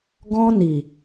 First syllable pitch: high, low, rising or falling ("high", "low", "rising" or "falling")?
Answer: high